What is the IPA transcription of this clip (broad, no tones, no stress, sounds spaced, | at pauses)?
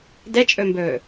d ɛ t͡ʃʼ ɵ m b ɵː